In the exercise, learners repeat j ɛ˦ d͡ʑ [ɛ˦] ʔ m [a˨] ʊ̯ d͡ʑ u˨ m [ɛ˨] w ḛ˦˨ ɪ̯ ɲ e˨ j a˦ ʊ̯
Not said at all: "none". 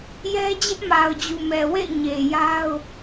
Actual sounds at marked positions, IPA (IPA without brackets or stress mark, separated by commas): ɪ˦, a˨, ɛ˨